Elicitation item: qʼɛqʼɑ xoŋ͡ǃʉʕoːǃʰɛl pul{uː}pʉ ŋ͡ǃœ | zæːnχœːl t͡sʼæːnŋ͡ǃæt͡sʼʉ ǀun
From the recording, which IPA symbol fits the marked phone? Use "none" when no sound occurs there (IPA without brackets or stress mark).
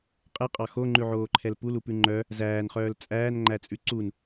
u